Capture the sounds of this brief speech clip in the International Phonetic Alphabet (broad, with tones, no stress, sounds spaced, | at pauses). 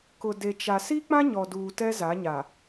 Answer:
k ʊ˨ d e˨ t͡ʃ a˨ s i˦ k͡p ã˦ ɲ ɔ˨ d uː˨ t ɛ˦ z a˨˦ ɲ a˨